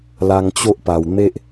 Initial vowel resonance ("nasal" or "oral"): oral